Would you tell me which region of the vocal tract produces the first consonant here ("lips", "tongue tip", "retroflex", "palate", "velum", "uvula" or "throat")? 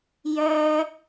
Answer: palate